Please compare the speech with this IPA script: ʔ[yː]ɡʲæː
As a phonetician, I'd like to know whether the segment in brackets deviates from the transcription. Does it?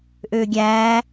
yes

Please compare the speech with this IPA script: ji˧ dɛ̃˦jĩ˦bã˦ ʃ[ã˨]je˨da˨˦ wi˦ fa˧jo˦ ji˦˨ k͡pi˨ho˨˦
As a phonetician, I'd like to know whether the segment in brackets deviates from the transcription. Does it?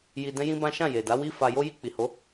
yes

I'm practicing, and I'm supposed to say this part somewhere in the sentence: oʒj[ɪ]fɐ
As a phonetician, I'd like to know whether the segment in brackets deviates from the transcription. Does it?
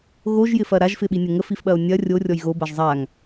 no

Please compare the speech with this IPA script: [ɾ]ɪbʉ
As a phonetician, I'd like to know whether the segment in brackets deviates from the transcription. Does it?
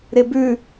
no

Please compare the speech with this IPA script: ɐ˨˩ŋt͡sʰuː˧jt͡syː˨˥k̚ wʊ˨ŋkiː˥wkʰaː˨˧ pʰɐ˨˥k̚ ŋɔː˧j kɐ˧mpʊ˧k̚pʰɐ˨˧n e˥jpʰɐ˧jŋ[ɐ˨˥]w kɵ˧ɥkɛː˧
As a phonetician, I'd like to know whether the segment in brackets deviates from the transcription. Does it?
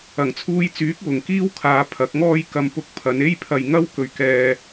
yes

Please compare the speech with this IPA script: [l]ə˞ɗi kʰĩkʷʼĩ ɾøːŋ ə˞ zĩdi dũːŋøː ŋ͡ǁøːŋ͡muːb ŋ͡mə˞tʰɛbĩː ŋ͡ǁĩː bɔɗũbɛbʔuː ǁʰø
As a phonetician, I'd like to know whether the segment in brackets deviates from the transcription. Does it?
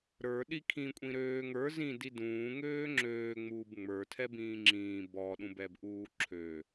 yes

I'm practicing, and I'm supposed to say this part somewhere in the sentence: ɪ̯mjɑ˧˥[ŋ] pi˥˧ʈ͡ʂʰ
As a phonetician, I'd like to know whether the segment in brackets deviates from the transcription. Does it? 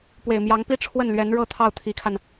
no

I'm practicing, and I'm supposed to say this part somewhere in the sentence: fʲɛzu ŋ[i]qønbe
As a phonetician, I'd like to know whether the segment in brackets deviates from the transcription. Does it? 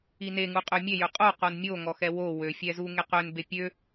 yes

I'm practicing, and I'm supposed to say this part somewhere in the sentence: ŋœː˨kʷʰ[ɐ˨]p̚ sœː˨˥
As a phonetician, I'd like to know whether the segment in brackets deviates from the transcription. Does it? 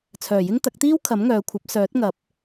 yes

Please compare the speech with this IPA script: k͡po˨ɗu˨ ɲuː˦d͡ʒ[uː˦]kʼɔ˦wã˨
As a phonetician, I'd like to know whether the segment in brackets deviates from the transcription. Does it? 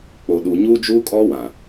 no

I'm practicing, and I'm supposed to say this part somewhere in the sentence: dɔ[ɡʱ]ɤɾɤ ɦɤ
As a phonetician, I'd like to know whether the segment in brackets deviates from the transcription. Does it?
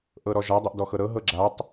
yes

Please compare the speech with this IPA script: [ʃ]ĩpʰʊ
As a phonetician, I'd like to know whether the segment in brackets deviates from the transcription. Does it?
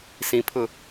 yes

